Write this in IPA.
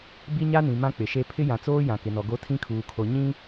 bi˦ɲa˦nĩ˨ mã˦k͡pɪ˨ʃe˦ pʰɪ˦jã˨t͡soː˦ jã˨kɪ˨nɔ˨ɡo˦ tʰĩ˦kʰuː˨kʰo˨ ɲĩ˦

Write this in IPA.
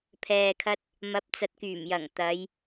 pʰɛː˨kʰɐ˧t̚ | mɐ˨˥p̚t͡sɐ˨t̚kyː˨˩mjɐ˨˩ŋ t̪ɐ˨˧j

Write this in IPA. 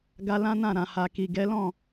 ɡa˧lã˦nã˦˨ ɾã˨ha˨ki˨ ɡɛ˨˦ lɔ̃˦˨

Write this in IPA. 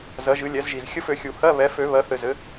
zɜ˩˥ʒɨ˩˥lʲɛ˩˥zʒi˨z xʲə˧˥˧fø˨˩˦ xʲu˨˩˦hɜ˧˥˧ βɛ˩˥fø˨˩˦ βɜ˩˥θɘ˨zɘ˩˥

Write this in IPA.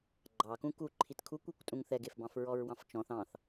ɡ͡ǃɑkũ ku ǃʰitkʰukʷekʷtʼũŋ θɛɡefbɑ̃f ɹɔɹwɑ̃ft͡ʃɔ̃θ ɑ̃θ

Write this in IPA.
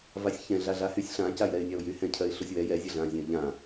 vasʲçɛ̃ ɮaɮahysʲ ɬã cajɾɛɪ̯nʲaʊ̯jy hɛ̃cʰɜɪ̯ɬusʲwɛ jɛzʲɜɮãzʲɛ̃ə̯ ʎã

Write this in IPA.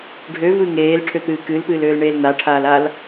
ɖʱøvɨ ŋeːlʈʰøt̪ɨː kɨlpɨːløːlɳeːl n̪aʈʰaːlal

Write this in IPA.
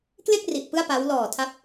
kle˥˩k̚ ri˨˩ʔpɯ˥˩a̯pa˦˥w lɔː˨˩tʰa˦˥p̚

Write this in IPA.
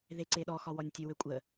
ðeǀeɗɔxɒ wɔnʲtʲøwøkʷʼə

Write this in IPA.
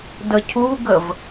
dəcʰuɡəv

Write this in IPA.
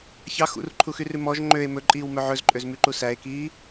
çɑ xṵrǃʰuxyrʉ mɔʒ ŋ͡ǃøe̯ mɵǃʼiːwmœ ʕɵzǃʼøzmyǃu sæe̯kiː

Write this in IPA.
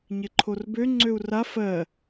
ɲɪǃʰorbø ŋ͡ǀøu̯ra fɜ

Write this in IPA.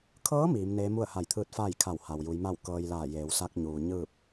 kʰɤː˧˥ miː˩˧mneː˧˥ mu˥˨ə̯ha˧˩jt̪ʰɯː˧˥t̚ faː˥˨jkʰa˧˩w ha˩wju˩˧jma˥˨w kɤː˧jlaː˧˩jeː˩˧w sa˧k̚ɲuː˩ ɲɯː˥˨p̚

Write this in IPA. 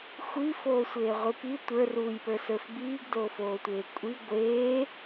xʷifoːsʷeːʁʷi pi tʷə˞ruːjpə˞sə˞f biːɡdofoːtʷeː kʷʼi ɡʷeː

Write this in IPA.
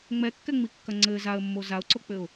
ŋ͡mɛkːɛŋ͡mikːɐ ŋ͡ǀɘ zaə̯mːo zaʊ̯ǀok͡pɘʊ̯

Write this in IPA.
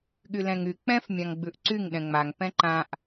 ɠylɛ̃ŋy k͡pɛ̃f mʲãŋɡ͡bʉʔǀyŋ ɗɛ̃ŋ͡maŋ pɛ̃ǃãʔ

